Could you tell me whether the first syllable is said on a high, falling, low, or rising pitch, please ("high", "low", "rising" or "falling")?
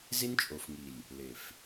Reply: high